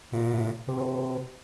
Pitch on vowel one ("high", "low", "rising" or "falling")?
low